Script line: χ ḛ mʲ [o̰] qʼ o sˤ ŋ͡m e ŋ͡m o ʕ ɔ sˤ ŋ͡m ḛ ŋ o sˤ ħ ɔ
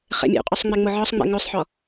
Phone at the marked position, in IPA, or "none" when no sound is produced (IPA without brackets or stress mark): o̰